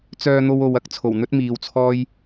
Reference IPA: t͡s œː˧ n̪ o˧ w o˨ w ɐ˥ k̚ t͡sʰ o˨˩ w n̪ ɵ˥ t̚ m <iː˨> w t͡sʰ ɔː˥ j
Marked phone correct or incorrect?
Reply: correct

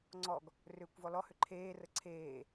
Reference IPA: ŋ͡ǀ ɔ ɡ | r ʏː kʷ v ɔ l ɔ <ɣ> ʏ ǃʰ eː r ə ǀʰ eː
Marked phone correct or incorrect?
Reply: incorrect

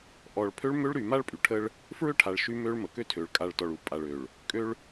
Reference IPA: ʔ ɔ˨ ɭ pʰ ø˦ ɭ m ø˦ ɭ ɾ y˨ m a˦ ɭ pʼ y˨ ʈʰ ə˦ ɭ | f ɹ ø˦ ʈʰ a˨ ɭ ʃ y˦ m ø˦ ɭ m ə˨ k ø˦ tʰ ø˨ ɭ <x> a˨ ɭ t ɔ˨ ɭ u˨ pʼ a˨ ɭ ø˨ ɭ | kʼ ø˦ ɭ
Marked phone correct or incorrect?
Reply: incorrect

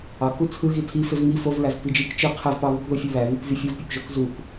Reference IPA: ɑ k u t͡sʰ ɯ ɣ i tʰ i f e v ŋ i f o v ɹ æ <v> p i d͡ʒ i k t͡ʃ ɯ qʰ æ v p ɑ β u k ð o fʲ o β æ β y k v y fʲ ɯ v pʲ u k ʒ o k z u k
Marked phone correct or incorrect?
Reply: correct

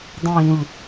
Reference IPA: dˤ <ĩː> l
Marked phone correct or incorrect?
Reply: incorrect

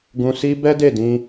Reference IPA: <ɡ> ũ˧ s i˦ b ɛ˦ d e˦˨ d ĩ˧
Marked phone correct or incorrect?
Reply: correct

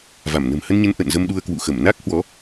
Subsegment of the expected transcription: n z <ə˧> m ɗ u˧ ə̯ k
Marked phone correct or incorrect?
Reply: correct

